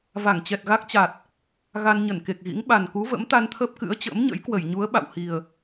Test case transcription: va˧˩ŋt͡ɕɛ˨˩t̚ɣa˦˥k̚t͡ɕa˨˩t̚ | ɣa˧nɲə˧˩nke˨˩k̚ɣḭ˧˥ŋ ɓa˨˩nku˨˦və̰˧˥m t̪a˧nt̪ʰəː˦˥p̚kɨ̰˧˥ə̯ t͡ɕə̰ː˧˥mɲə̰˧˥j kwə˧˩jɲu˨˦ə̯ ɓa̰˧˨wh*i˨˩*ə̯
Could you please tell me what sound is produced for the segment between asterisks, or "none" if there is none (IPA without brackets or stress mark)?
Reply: i˨˩